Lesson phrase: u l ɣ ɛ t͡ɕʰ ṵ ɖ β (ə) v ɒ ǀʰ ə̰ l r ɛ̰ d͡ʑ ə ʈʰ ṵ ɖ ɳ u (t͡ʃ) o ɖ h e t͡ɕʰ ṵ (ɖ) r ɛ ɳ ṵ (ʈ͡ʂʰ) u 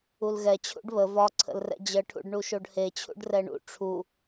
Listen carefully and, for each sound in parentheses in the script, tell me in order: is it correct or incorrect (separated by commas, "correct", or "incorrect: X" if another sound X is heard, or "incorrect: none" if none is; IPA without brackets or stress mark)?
correct, incorrect: ʃ, correct, correct